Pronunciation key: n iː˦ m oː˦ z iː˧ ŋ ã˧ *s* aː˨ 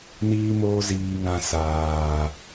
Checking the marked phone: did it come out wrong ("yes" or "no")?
no